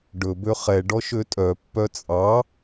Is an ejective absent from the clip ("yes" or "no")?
no